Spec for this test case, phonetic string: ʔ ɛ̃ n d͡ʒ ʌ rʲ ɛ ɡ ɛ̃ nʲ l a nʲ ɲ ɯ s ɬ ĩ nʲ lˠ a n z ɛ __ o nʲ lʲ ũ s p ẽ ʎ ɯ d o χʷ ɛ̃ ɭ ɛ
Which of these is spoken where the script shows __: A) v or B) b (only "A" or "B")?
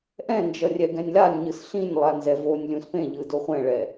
A